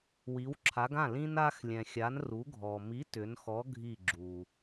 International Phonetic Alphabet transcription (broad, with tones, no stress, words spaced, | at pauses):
wi˩˧wǁʰa˩˧ɡã˥˩ lĩ˧na˧xlʲɛ̃˩xʲa˩˧n ru˩˧ɡʱɔ˩mi˨˥ tʏ˩˧nxɔ˨˥ɡʱi˧˩ ɡ͡ǁu˩